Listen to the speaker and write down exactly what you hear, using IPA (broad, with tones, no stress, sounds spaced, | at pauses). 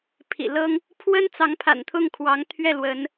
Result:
pʰ ḭ˨˩ l ɤ˦ ŋ | pʰ w ə˦ n t͡s ɑ˨˦ ŋ pʰ a̰˨˩ n t̪ʰ ʊ˥˨ ŋ kʰ w ɑ˨˦ ŋ t̪ʰ ɥ ɛ˥˨ l w ə˨˦ n